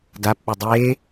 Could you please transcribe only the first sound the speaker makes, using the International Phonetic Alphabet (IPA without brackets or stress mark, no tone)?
d